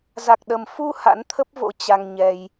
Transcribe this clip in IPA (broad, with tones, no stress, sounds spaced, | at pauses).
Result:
z a˨˩ k̚ ɗ ə˨˩ m f u˧ h a̰˧˥ n t̪ʰ ə˦˥ p̚ v o̰˧˥ t͡ɕ a˧ ŋ ɲ ɛ˧ j